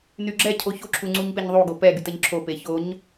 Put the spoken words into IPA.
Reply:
nyɡ͡ǁɛcʰo çoǁʰu ŋ͡ǀuɲpeɲðˤuɡo pɛɡyt ɘɲǁʰope çoɲ

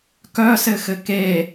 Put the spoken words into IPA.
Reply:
kœsɘxɘ ke

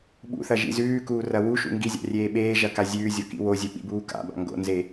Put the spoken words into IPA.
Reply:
ɓṵθɐ ʒḭzʉːkuː rɐwuʃṵ ŋɡizʲa̰ rʲeːɓeːʒɐ kazʲʉːzʲo kḭwozʲɵ ɓḭbuːka̰ba̰ ŋɡo̰nze

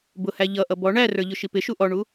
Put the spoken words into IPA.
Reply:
bʊhæ ʎʌʔʌ bɔ ɳærə˞ ʎʊʃipɪʃu ʔɔɳu

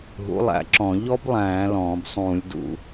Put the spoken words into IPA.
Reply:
ɦṵ˩˥lˠæ̰˧˩˧ǁɔ̃˧˩˧ ʎɔ˦˥blˠæ̃ː˧˩˧ lɔ̃ː˧˩˧bsˤũː˧˩˧lʲdṵ˧˩˧

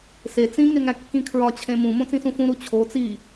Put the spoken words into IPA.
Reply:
se t͡sĩ ŋeŋækːĩkʰɹɒ t͡ɕʰẽmũ mõt͡sĩsũfũ ɾut͡ɕʰo t͡si

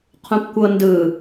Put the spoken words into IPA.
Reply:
qʰũpkʷɤndɯ

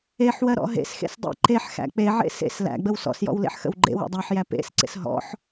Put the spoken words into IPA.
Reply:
eħwɜ ɾɔ̰ɦḛsxḛs dˤḛǃeħxæ̰ k͡peʕḛ sḛs læ̰ɡ͡bəw sɔ̰sjɔ̰w lḛħxə̰wɡ͡ǃḛwɔ̰ dˤæħjæ pḛsǀḛs ɦɔ̰ħ

